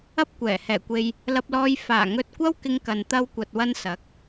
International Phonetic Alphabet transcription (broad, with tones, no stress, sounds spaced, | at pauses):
ɐ˧ p̚ kʷ ɛː˨˩ h ɛː˨˩ kʷ e˨ j | l ɐ˧ p̚ l ɔː˧ j f aː˨˩ ŋ ɵ˧ t̚ kʷ ɐ˥ w k ɪ˧ ŋ k ɐ˨ n t̪ ɐ˧ w kʷ ɐ˨ t̚ w ɐ˧ n s ɐ˨˥ k̚